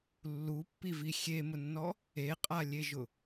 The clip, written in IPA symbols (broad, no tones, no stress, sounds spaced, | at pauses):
lː u pː i v i xʲ e m ʊ nː ɔ | e qʼ a lʲ e ʒ ʊ